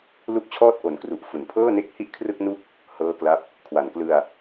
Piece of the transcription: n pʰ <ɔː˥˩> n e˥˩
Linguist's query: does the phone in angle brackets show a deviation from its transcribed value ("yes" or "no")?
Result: yes